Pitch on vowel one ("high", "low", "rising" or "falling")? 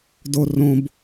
low